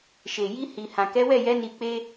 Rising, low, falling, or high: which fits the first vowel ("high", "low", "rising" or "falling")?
low